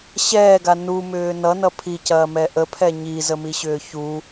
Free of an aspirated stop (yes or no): no